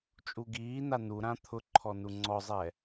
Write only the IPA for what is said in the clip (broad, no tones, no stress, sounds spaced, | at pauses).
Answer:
t͡ʃʼ u ɡ iː n a n u ɾ ã t̪ʰ ʊ ǃʰ ɔ n u ŋ͡ǀ ɔ zˤ ɛ